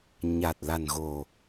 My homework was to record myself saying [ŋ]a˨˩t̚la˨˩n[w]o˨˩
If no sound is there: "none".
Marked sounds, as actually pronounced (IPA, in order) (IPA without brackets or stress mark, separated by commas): ɲ, ɣ